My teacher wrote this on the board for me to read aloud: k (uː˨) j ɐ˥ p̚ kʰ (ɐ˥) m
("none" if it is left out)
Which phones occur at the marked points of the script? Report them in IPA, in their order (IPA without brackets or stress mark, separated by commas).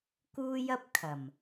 uː˥, ɐ˨˩